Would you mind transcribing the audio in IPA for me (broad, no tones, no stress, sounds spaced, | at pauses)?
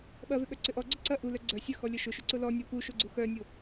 ɓ ɐ v ʏ ɠ œ ǀ ʏ ʔ ɔ ɡ͡ǀ ʊ ǀ ɐ ʔ u l œ ɡ͡ǀ œ sʲ ɐ x ɔ lʲ ɐ ʃ ʊ ʃ ʏ ǀ ʊ l ɔ nʲ ɔ p u ʃ o ɡ͡ǀ u x œ nʲ o